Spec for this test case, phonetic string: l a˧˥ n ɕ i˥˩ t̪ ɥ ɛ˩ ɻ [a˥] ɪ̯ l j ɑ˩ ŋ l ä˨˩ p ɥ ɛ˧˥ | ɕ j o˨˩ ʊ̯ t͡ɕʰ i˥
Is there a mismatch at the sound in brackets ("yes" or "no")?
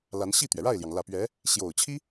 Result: yes